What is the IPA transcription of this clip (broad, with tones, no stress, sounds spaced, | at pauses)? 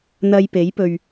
n̪ ɐ˨ j p e˨˥ j p ɵ˧ ɥ